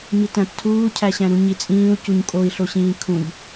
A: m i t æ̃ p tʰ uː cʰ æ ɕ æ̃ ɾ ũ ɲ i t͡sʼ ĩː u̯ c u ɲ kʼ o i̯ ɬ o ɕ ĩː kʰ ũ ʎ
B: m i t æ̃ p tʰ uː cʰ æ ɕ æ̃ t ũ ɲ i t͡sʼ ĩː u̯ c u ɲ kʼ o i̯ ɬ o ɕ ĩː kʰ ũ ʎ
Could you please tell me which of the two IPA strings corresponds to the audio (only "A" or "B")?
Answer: A